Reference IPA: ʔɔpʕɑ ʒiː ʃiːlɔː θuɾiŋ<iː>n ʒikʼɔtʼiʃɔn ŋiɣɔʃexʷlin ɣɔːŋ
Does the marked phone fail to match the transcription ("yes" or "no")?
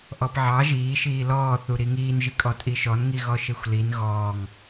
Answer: no